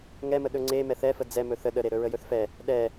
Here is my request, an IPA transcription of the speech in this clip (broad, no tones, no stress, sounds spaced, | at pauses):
ŋ ɛ m ə ɗ ɵ ŋ͡ǀ e m ɛ θ ɛ f ə d͡z ɛ m ɵ θ ə ɗ ə ɾ e ɾ ɵ ɹ ə j ɵ θ f ɛ | ɗ ɛ